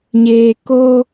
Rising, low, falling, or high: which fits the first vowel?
low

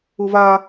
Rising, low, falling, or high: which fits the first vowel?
high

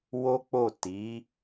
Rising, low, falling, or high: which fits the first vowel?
high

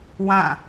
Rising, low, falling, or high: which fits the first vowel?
falling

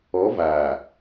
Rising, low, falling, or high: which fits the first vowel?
rising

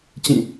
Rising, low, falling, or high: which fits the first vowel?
falling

